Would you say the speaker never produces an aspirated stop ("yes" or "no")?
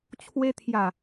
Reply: no